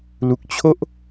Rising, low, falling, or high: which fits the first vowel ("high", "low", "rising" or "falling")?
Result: low